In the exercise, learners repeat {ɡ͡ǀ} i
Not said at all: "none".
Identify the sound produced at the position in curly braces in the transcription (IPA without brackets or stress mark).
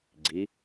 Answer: ɡ͡ǀ